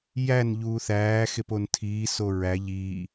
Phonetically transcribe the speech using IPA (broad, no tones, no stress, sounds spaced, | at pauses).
j æ n ʎ uː θ æː x e p o n tʰ iː s o ɹ æ ʎ iː